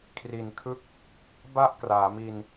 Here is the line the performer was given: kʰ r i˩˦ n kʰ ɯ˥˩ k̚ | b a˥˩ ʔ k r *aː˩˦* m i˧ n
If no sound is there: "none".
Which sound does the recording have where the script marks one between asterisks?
aː˩˦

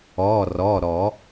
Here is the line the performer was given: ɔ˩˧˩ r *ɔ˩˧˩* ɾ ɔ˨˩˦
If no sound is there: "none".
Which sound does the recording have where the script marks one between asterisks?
ɔ˩˧˩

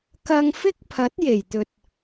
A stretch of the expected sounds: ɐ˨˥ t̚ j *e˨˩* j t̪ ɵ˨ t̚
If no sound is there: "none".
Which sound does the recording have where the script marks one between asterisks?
e˨˩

